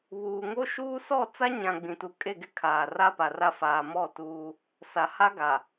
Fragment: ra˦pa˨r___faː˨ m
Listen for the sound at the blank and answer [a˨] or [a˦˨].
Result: a˦˨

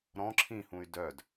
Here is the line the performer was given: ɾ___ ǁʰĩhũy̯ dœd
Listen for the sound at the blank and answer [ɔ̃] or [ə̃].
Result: ɔ̃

